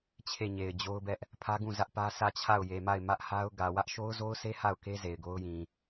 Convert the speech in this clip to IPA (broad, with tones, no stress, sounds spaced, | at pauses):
t͡ɕʰ e˦˨ ɲ e˨ ɪ̯ d͡ʑ o˦ ʊ̯ b ɛ˦ ʔ | pʰ ä˦ ɡ ũ˦˨ z ä˦ ʔ p ä˦ s ä˦˨ t͡ɕʰ a˦˨ ʊ̯ j e˨ m a˦˨ ɪ̯ m ä˦ ʔ h a˦ ʊ̯ ɡ ä˨ w ä˦ ʔ ʃ o˦ ʊ̯ z o˦ ʊ̯ s e˦ h a˦˨ ʊ̯ k e˦ z e˨ ɪ̯ ɡ o˦ ʊ̯ j ĩ˨